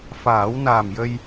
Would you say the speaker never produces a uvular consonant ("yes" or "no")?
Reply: yes